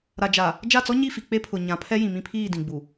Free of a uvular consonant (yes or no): yes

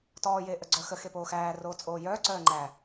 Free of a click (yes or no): no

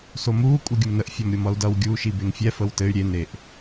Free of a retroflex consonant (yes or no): yes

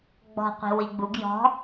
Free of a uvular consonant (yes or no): no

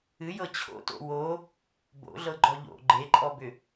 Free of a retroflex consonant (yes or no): yes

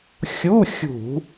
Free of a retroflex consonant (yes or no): yes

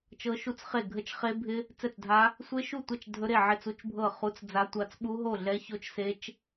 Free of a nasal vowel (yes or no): yes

